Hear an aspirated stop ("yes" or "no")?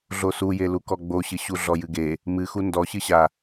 no